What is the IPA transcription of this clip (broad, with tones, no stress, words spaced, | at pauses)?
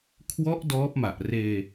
kʰwɔ˦˥ʔ dɔː˦˥p̚ma˨˩ʔreː˧